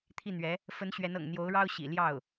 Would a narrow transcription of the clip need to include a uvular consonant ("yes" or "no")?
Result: no